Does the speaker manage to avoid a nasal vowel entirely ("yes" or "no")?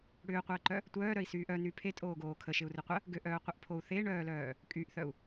yes